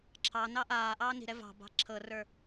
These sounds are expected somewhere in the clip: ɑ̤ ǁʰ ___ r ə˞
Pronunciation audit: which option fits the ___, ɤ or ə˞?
ɤ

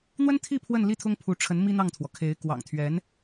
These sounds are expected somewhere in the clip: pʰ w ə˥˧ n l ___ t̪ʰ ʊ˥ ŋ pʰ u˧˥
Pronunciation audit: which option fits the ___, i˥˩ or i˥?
i˥˩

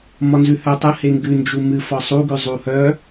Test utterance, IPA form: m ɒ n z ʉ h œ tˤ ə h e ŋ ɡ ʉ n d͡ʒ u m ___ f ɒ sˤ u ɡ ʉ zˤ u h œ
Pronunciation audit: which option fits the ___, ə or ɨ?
ɨ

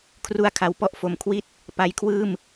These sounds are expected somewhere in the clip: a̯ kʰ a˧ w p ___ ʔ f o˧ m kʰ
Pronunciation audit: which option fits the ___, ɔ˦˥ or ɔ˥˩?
ɔ˥˩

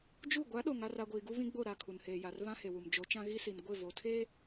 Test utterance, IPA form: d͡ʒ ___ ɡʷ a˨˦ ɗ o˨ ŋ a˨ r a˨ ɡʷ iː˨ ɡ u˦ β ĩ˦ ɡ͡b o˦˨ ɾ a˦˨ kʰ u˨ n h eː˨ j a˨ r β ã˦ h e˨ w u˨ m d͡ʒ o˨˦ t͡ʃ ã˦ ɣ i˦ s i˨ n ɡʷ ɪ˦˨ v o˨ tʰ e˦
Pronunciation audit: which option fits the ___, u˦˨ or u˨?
u˦˨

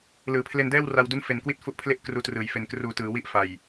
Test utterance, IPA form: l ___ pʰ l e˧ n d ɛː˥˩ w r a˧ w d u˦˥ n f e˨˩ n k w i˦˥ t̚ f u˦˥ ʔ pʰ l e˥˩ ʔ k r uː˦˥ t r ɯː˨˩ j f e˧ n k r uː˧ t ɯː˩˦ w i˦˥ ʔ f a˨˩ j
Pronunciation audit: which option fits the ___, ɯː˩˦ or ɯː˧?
ɯː˩˦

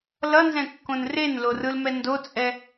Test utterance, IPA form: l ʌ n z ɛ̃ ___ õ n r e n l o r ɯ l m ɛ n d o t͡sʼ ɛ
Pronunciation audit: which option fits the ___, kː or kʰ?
kː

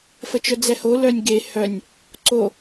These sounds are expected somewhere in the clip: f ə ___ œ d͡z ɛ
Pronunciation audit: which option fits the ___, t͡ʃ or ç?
t͡ʃ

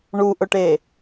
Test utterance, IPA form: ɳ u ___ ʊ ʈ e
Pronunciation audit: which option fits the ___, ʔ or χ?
ʔ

